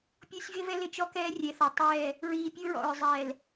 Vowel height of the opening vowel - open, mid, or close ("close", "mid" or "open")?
close